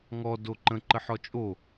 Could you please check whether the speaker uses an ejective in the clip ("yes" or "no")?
yes